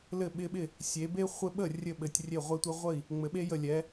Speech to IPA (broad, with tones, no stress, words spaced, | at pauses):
lɘ˥˩ɓɪ˦ɓɪ˥˩ | sʲe˩˧be˦ χʷɘ˦ɓə˥˩ rʲɘ˥˩ɓɘ˩˧tʲrʲe˥˩ʁʷɛ˦ tʷe˦ʁʷə˥˩i̯ | ŋ͡mɘ˩˧ɓe˦jə˧˩lʲɛ˩˧